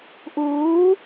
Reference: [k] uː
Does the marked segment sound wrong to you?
yes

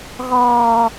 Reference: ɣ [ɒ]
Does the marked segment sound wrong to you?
yes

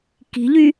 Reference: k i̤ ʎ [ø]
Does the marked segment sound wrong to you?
yes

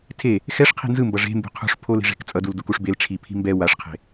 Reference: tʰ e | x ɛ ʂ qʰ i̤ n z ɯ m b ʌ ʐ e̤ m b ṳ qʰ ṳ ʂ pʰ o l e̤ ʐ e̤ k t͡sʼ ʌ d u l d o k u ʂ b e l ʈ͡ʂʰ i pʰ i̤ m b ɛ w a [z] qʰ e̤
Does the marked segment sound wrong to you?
yes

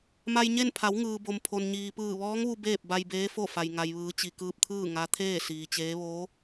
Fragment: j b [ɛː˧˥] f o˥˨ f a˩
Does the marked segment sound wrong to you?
yes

